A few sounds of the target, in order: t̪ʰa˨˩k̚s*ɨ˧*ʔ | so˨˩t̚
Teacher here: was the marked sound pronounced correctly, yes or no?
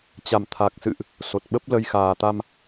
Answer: no